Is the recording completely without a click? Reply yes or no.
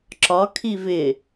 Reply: no